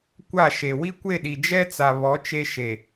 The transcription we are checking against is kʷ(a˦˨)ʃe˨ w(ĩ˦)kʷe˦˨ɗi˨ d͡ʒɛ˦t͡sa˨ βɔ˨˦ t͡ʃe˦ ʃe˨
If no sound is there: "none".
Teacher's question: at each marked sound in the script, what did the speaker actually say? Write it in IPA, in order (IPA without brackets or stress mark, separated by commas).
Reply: a˦˨, i˦